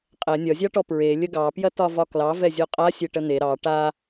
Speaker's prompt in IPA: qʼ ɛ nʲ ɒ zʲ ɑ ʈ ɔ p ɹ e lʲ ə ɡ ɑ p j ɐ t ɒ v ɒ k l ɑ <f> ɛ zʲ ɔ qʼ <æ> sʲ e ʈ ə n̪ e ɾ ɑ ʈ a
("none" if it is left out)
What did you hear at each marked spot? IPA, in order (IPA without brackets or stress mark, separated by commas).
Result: v, a